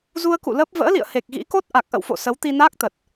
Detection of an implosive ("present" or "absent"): absent